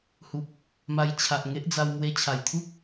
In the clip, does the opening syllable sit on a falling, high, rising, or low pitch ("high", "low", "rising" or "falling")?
low